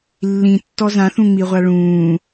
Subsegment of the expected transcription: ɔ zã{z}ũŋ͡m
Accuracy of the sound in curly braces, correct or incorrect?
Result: incorrect